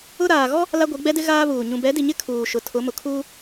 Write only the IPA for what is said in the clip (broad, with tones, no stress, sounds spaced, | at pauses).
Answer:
ʊ˦ ɾ aː˨ ɣ ɔ˦ | l a˦ ɡʷ i˨˦ ɡ͡b ɛ˦ d ɪ˦ ɣ aː˦ β uː˨ ɲ ũ˨ b ɛ˨˦ d i˨ ɲ ɪ˦ kʰ uː˨ ʃ ʊ˨ tʰ ʊ˨˦ m ʊ˨ kʰ uː˦